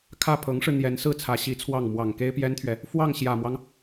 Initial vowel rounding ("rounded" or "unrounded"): unrounded